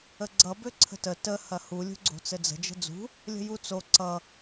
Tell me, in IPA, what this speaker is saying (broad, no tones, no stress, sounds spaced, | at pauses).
ə ɡ͡ǀ ʌ b ø ǀʰ ə̤ t ə t ə h ɐ h u lʲ ṳ ɡ͡ǀ o̤ t͡s ɘ d͡z ə̤ d͡ʒ ə̤ d͡z ṳ | lʲ ə̤ j u t͡s o ǀ ʌ